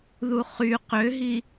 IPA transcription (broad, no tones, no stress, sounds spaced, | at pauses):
ð u χ y q ø ɦ i